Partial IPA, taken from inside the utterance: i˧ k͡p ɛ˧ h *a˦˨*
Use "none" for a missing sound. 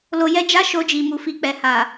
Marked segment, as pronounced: a˨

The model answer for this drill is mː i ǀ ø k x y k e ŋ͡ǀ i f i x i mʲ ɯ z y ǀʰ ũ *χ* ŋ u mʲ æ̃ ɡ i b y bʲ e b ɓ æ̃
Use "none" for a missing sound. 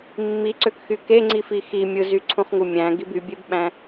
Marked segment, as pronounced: χ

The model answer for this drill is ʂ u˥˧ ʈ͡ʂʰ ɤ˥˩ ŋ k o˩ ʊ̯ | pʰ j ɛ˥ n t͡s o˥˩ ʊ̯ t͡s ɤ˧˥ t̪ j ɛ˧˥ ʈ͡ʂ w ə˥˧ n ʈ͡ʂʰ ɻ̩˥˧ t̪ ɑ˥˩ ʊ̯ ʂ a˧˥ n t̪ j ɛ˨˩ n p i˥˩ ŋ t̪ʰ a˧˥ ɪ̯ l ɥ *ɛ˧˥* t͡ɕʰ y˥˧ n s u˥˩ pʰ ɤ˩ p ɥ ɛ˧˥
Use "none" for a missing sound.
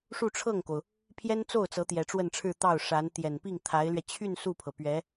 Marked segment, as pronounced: ɛ˧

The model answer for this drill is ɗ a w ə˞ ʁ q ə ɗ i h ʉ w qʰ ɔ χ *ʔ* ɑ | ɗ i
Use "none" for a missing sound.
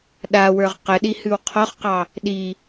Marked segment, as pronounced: q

